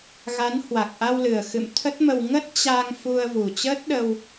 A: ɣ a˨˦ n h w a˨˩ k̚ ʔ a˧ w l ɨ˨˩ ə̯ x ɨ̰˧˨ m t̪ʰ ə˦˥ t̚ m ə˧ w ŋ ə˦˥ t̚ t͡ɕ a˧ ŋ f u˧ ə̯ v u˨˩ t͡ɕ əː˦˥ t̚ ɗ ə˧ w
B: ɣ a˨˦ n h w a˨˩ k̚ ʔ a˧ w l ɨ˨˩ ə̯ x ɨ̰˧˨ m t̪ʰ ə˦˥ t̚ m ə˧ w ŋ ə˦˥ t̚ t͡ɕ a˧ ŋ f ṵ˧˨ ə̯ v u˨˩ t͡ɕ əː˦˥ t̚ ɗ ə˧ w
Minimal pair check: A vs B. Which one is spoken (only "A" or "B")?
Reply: A